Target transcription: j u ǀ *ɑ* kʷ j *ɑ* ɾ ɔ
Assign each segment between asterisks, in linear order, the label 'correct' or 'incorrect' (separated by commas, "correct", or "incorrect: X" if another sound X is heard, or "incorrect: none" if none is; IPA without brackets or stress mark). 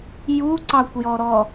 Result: correct, incorrect: ɔ